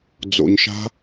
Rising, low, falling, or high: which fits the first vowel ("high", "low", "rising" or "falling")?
low